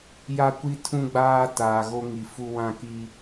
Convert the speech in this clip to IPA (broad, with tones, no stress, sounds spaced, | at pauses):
j a˦ kʷ i˦ tʰ ũ˦ ɡ͡b aː˦ t aː˨ ɣ o˦ ŋ i˨ f u˦ w ã˦ k i˦